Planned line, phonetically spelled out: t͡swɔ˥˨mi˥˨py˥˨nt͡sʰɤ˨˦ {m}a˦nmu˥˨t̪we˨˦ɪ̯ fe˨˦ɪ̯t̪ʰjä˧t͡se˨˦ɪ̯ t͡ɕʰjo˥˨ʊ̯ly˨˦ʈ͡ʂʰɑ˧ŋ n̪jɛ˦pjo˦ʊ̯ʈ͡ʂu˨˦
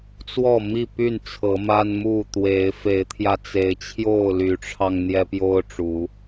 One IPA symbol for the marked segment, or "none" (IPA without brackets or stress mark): m